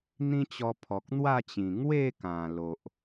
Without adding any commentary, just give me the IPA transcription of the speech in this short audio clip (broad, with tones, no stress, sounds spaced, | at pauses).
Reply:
n̪ ĩ˦ t͡ɕ ɔ˧ pʰ ɔ˨ k̚ n̪ w a˥˧ t͡ɕ ĩ˨˩ ŋ w e˥˧ k ã˨˩ l o˨ ʔ